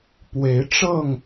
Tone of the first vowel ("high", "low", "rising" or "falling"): rising